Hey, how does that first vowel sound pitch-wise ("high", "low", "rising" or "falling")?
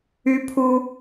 high